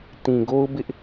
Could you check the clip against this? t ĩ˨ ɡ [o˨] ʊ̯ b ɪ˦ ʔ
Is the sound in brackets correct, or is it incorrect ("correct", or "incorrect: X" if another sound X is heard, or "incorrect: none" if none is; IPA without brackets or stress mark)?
incorrect: o˦